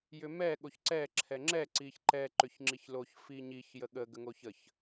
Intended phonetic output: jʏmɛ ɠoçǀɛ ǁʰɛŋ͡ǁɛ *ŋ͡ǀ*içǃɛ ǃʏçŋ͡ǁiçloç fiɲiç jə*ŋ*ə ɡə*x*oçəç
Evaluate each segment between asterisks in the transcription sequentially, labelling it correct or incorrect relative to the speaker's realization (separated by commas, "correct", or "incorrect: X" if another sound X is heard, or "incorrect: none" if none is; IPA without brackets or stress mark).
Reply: incorrect: ǀ, incorrect: ɠ, incorrect: ŋ